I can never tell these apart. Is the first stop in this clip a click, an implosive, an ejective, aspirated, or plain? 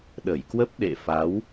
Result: implosive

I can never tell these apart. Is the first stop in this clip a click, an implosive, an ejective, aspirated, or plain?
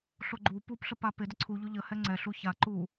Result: click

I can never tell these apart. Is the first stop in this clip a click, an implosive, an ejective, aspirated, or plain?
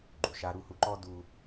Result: click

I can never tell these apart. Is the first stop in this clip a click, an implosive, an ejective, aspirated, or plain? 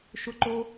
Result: click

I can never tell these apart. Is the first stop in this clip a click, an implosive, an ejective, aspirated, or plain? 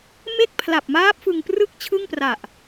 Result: plain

